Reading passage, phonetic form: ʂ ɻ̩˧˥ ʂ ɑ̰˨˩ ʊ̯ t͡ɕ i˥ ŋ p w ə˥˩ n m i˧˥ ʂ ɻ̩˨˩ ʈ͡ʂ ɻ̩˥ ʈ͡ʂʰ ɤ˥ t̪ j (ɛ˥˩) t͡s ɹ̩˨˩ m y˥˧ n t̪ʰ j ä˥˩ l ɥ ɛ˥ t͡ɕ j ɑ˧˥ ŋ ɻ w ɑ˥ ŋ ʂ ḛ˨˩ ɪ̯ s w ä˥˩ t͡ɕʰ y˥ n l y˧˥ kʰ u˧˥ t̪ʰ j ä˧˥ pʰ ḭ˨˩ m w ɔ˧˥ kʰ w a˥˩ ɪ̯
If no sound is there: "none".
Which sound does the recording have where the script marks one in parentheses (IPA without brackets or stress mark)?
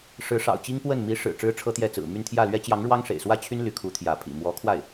ɛ˥˩